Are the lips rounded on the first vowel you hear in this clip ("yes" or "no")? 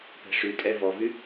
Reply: no